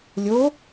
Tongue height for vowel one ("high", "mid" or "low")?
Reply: mid